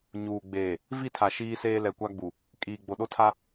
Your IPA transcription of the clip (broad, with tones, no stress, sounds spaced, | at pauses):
ɲ uː˨ ɡ͡b eː˨ | v i˦˨ tʰ a˨ ʃ iː˦ s eː˦ l ɛ˨ kʷ a˦ ɡ͡b u˨ | kʼ iː˨ ɡ͡b o˨ ɗ o˦ tʰ a˦